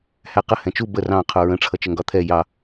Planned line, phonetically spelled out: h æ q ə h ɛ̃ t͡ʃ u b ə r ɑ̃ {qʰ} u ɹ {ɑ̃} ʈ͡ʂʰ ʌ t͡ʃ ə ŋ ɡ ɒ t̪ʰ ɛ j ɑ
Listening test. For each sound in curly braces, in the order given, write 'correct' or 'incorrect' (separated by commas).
correct, incorrect